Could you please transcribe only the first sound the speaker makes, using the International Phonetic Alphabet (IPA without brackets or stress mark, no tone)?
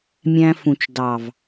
mʲ